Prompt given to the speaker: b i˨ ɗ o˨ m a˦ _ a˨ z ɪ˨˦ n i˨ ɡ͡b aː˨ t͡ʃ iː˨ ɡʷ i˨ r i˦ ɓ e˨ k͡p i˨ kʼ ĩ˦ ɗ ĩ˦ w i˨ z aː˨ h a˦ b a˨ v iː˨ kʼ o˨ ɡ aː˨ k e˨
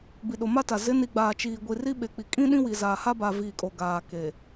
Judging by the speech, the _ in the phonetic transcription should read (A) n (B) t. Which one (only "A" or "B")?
B